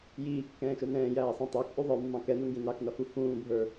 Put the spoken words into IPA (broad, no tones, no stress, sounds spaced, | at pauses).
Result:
j iː kː ɛ̃ː ʃ ə˞ n ɛ̃ː j æː sˤ ɑ̃ tˤ æ k ʔ u ðˤ ə˞ mː ɑ̃ k ɛ n u ŋ ɡ ĩ n ɑ k n ʌ f u f ũː bʱ ə˞